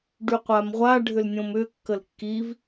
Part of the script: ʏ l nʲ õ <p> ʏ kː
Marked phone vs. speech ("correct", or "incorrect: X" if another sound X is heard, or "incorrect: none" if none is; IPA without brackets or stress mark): incorrect: m